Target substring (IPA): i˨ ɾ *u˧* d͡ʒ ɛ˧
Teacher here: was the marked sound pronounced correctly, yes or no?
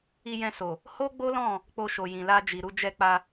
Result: yes